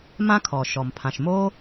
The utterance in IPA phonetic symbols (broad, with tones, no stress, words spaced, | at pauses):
mã˥kʰɔ˩ ʃɔ˩mpʰã˩ʃ mo˥